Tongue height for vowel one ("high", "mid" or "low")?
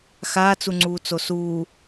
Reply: low